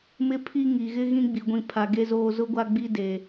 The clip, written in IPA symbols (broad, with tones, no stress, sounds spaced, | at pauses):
m ɪ˦˨ pʰ i˦ ŋ i˨ ɣ ɪ˦ ɣ ĩ˦ ɡ͡b i˨ ɡʷ ĩ˨ pʰ a˨ ɡ e˦ z oː˦ z ʊ˦ ɡʷ a˦ ɡ͡b i˦ d e˨